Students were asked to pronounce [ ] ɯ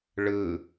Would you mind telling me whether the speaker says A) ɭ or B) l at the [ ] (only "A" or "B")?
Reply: A